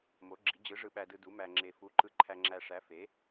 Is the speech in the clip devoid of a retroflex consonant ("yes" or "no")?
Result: no